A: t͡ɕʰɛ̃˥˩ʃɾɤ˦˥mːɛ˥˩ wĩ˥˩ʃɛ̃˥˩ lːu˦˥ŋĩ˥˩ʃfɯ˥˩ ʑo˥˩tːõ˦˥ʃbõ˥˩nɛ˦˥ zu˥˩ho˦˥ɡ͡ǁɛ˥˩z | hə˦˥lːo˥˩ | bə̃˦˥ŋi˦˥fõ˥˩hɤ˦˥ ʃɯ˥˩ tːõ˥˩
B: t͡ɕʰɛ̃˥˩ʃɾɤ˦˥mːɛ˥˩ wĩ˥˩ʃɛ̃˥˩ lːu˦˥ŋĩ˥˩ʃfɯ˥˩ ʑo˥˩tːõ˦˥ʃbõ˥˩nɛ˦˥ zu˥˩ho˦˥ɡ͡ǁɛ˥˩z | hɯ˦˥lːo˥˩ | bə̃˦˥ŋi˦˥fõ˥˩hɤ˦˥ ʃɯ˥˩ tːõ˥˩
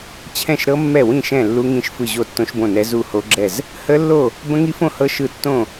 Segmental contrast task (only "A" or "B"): A